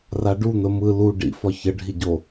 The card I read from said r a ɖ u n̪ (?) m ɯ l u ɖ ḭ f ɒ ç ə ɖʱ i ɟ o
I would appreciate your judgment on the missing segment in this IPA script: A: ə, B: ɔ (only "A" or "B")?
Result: A